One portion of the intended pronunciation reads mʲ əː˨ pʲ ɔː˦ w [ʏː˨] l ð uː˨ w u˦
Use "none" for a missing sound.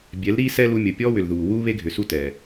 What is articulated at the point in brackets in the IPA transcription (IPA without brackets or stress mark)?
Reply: ʏ˨